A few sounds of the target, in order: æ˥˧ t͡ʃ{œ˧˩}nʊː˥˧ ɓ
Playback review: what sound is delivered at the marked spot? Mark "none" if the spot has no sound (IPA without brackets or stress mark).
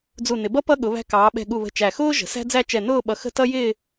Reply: ɛ˧˩